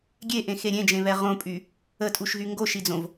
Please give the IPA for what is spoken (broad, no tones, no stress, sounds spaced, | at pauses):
ɡʲ e ʔ ẽ x e ɾʲ ẽ d͡ʒ ẽ β ɛ ʁ õ pʼ y | ə tʼ u ʃ ɣ y ŋ ɡ o ʃ i d͡z õ v